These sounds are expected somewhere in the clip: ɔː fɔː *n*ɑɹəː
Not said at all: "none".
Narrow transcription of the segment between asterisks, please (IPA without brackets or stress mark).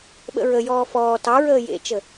t